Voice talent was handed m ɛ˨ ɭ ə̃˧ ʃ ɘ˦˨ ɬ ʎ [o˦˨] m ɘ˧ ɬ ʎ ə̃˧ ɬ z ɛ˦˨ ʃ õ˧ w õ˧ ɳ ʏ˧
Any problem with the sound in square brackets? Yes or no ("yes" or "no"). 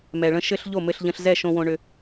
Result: no